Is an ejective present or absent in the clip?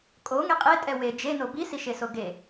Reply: present